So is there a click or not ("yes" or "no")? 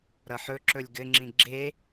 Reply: yes